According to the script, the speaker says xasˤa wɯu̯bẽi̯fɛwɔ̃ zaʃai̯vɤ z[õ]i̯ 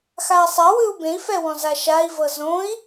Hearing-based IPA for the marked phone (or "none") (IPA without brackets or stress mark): õ